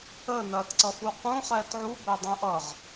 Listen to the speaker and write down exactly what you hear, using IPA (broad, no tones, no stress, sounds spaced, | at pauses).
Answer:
ə n ɐː t ǀ ʌ f u q ũ χ ɛː t ʕ u b ɛ dˤ ũ ʔ ʌ ʁ